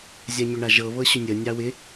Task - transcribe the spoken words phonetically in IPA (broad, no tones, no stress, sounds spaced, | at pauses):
zʲ a ɲ ʏ ɳ a ʒ ɤ β ɤ ɕ ʏ nʲ ə nʲ ɑ w ɪ